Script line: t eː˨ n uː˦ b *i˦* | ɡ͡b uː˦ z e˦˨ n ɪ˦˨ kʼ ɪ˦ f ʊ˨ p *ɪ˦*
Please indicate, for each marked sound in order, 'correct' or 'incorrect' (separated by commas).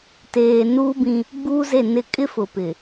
incorrect, incorrect